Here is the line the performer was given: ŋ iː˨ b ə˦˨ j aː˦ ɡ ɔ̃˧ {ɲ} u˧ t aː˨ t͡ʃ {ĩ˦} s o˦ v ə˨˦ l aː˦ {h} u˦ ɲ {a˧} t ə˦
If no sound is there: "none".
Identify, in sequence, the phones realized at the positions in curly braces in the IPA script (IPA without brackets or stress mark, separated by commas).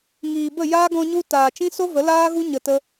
ɲ, ĩ˦, ɣ, ə˧